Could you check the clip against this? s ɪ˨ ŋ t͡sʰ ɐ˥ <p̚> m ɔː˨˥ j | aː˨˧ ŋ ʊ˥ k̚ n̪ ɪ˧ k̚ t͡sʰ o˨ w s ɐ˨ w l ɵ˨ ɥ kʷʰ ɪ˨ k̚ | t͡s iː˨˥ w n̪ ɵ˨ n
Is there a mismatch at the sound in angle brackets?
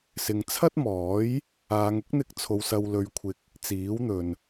yes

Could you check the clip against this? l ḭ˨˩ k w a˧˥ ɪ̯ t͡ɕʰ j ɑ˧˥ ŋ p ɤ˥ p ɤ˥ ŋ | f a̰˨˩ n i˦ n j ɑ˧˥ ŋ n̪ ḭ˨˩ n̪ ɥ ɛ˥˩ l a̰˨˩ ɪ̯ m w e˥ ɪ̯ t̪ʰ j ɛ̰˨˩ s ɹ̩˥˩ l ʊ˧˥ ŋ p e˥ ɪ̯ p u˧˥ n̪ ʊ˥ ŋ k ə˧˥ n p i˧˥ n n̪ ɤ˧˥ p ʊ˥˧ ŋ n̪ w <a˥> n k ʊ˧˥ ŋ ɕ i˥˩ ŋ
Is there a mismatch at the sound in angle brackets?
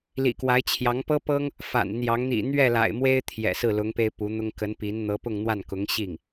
yes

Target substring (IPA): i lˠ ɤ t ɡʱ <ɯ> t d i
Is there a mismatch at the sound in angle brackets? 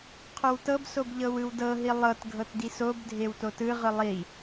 yes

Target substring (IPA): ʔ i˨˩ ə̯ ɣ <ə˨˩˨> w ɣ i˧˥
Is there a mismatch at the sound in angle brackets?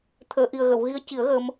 no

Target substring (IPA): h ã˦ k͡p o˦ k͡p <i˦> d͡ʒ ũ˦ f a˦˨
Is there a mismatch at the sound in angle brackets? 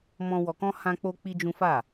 no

